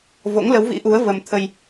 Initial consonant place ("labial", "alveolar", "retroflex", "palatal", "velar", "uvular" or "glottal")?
labial